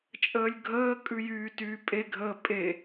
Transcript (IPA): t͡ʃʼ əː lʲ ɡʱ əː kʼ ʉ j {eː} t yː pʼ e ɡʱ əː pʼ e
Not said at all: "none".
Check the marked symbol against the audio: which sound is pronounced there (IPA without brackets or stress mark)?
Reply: yː